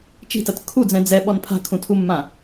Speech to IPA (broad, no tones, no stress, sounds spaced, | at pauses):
t͡ʃ i̤ t ɐ t kʰ u d͡z ɛ̃ d͡z ɛ ɓ ɔ n pʰ a̤ kʰ ũ tʰ u mː ã